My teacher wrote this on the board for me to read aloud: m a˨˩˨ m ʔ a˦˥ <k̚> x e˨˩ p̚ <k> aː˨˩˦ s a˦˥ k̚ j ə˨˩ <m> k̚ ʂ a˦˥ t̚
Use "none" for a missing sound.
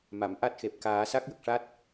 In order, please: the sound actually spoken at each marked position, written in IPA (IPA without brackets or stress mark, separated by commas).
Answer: t̚, k, none